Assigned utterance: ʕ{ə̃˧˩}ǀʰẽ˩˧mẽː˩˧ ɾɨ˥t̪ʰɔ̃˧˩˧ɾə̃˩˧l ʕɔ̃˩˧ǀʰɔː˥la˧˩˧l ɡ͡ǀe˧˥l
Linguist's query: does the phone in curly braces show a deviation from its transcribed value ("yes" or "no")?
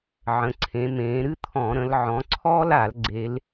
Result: yes